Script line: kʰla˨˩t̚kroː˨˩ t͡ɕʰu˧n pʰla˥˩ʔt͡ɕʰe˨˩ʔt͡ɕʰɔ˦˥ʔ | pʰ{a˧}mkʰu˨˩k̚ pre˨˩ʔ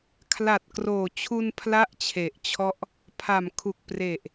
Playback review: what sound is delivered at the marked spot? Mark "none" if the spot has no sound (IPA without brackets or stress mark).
a˨˩